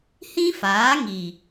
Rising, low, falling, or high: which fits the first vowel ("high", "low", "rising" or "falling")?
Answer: high